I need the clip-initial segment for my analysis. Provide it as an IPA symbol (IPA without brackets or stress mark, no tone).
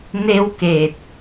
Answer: n